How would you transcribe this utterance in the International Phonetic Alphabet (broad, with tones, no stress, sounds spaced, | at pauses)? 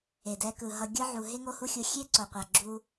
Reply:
e˩ d ɛ˨ k ɯ˩ ɦ ʌ˨ ɡʲ ɯ˥ ʕ u˨ ɦ e˥ ŋ o˦ h u˦ xʲ u˨ xʲ e˥ ǀ o˨ qʷ a˨ ɡ͡ǁ u˦